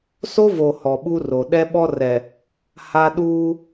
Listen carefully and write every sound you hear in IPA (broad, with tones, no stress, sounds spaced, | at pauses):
s o˦ v o˨ h ɔ˨ ɓ u˦ r o˨ ɗ ɛ˦ ɓ ɔ˦ r ɛ˨ | h a˦ ɗ uː˦